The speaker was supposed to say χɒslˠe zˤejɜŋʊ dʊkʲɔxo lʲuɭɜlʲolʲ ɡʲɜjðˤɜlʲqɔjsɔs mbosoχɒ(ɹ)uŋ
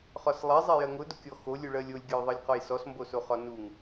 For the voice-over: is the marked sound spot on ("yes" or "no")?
no